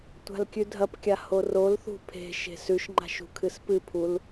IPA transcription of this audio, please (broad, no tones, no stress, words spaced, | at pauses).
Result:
tʷa̤lkʲʉdʱɐpkʲa horolθṳ pʰe̤ʃe̤s ʉʃŋ͡ǃa̤ʃ ṳkʰɨspɨpʰul